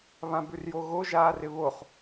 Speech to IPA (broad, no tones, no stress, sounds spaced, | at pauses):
β ã b ʉ r j o ɣ o ʒ aː r ɪ β o χ